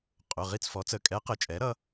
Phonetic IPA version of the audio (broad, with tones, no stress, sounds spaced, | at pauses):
qʼ ʊ˩˧˩ ʁ i˥˨ t͡s f ɔ˩˥ t͡s ə˩˧˩ kʼ ɛ˧˥ q ə˩˥ t͡ʃʼ ɛ˩˥ ɾ ʌ˧˥